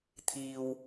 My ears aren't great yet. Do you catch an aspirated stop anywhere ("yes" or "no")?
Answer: yes